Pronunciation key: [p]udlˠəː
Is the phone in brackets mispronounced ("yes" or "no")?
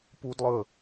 no